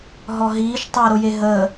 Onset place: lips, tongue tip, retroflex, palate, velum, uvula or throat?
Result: throat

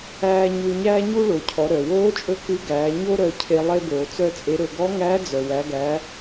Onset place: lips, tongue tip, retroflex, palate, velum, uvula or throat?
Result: palate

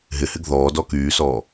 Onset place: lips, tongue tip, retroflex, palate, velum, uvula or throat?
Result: throat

